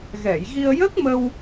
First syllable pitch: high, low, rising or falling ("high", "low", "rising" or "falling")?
low